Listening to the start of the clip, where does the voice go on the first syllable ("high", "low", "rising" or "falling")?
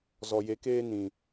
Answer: low